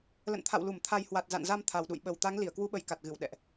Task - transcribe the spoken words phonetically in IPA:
l ə̰˧˨ n t̪ʰ a̰˧˨ w l u˧˩ m t̪ʰ a˨˩ j h w a˨˩ t̚ z a̰˧˨ n z a˧ m t̪ʰ a˨˩ w ɗ ṵ˧˨ j ɓ ə˨˩ w t̪ a˨˦ ŋ l i˧˩ ə̯ k w u˨˦ ɓ ə˨˩ j k a˨˩ t̚ ɣ ɨ˧˩ w ɗ ɛ̰˧˨ ʔ

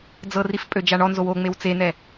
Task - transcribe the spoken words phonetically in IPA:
d͡z ɤ r i f pʼ ø d͡ʒ a ɳ ɔ n z o w o ŋ͡m e w t͡s e n ɛ

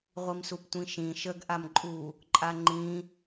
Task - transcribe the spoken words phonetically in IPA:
ʁʷ i m s u p tʷ ĩ ʃ ĩ ʃ ə ɡ ʔ a m ǃʼ u | ǃʼ a ŋ͡ǃ ĩ

